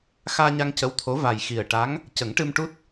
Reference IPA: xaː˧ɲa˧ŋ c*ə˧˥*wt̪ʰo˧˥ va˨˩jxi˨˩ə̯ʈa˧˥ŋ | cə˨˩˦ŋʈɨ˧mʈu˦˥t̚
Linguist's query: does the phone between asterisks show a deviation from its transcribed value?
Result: no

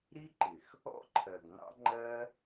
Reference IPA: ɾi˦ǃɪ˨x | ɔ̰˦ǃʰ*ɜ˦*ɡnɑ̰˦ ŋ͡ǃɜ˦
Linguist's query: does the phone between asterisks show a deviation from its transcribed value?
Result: yes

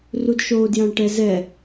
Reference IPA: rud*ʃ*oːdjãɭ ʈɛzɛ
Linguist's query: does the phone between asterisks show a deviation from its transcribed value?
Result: no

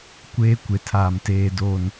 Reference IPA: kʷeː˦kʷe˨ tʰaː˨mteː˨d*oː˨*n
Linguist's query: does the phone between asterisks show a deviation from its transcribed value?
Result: no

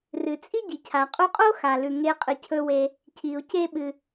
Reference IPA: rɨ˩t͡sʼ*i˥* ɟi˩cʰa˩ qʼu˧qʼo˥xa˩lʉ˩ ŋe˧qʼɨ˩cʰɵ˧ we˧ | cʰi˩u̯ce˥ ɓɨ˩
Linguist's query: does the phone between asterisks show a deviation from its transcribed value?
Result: no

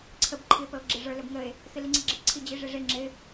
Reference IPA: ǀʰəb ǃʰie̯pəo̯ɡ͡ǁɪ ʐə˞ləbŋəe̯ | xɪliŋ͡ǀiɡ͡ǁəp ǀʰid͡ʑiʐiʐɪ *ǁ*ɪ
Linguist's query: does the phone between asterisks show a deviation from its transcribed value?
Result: yes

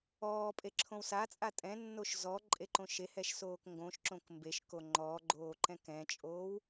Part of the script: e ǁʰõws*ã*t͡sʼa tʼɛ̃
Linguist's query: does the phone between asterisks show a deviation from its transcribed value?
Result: yes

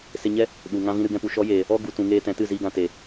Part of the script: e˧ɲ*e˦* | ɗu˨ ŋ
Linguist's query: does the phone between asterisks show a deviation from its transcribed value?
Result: yes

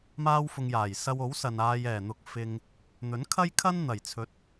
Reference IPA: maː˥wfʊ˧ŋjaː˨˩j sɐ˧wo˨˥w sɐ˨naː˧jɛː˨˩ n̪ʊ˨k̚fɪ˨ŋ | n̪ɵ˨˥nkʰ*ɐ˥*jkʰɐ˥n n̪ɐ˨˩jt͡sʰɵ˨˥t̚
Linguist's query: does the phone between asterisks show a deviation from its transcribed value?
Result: no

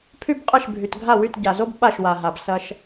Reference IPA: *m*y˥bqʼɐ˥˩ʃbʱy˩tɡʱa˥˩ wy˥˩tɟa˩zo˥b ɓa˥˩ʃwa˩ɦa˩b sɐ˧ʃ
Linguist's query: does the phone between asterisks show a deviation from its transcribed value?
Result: yes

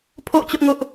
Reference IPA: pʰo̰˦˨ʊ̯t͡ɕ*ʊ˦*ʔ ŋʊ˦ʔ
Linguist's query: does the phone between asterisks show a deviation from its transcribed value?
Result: no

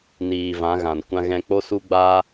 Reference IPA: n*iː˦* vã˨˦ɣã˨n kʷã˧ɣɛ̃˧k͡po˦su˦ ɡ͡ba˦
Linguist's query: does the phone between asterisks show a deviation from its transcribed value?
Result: yes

